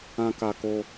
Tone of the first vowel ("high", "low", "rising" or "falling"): high